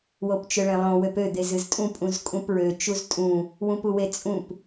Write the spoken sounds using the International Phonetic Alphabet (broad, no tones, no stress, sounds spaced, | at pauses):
w o p t͡ʃ ø ɭ ẽ lˠ õ w ø p ø d̪ e z ɨ z tʼ ũ pʼ ũ z kʼ ũ p ɹ ø t͡ʃ u z tʼ ũ | w ũ p u w e t͡sʼ ũ p